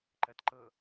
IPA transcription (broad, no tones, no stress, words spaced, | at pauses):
ǃɜtǃɤ